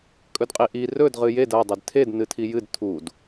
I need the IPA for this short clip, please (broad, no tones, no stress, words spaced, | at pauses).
kʼɵdqʼiʔi rɵd ʁɨjed ɐ dˤɨdtʰed nɨtʰijɨd tʰud